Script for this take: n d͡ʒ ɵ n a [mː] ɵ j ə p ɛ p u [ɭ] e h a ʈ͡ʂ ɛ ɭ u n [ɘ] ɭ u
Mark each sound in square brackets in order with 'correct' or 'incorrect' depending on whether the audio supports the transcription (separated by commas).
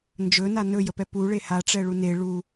incorrect, correct, incorrect